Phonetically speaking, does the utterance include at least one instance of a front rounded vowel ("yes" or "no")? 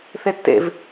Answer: no